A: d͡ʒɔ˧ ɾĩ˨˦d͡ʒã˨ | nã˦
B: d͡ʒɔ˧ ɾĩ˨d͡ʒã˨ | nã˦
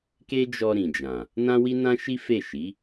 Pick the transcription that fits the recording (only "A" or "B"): B